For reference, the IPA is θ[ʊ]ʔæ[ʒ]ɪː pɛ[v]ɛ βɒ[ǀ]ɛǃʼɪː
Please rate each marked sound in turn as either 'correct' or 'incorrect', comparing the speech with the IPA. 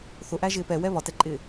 correct, correct, incorrect, incorrect

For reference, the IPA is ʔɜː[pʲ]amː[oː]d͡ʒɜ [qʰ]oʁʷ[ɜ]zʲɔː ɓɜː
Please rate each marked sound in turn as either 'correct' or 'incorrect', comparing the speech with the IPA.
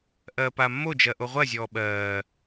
incorrect, incorrect, incorrect, correct

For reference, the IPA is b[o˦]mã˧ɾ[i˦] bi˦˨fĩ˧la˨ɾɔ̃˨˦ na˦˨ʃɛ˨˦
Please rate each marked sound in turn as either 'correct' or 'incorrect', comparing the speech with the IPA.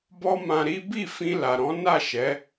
incorrect, correct

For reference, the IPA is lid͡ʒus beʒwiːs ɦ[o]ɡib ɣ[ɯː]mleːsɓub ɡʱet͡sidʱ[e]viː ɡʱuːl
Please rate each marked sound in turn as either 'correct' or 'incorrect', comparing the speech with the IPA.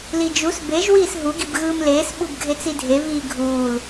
incorrect, correct, correct

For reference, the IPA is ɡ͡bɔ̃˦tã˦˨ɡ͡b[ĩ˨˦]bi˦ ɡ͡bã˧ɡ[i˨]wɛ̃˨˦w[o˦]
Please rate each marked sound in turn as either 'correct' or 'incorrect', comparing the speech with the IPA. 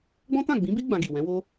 correct, correct, correct

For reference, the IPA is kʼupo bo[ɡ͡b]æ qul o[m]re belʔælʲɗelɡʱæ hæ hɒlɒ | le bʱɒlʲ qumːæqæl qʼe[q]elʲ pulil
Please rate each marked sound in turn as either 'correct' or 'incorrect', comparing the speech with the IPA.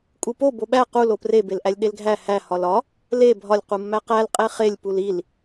incorrect, incorrect, incorrect

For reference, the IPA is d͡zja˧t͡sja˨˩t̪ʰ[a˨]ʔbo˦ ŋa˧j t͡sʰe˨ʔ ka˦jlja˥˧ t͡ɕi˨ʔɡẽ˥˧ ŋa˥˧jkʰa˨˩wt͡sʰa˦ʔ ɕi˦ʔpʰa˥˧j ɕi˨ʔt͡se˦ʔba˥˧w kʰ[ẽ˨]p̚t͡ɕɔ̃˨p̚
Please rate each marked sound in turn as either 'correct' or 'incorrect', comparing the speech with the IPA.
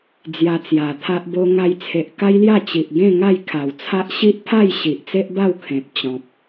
incorrect, correct

